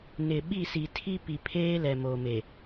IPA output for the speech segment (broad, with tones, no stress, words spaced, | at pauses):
nɪ˨ ɓi˦˨si˨tʰi˦pi˨ pʰeː˦lɛ˨mo˨me˨